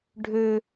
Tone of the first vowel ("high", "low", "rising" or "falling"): high